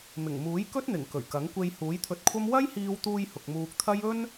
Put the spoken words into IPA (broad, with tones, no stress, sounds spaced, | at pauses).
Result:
m ɪ˨˩ ŋ m uː˨˥ j k ɵ˥ t̚ n̪ ɪ˨˩ ŋ k ɵ˨˩ ɥ k ɐ˨˥ ŋ kʷ e˧ j h uː˨˥ j t̪ʰ ɵ˧ t̚ kʷʰ ɐ˥ m w ɐ˥ j h iː˧ w t̪ uː˧ j h ʊ˨ k̚ m uː˧ k̚ t̪ʰ ɐ˥ j ɵ˥ n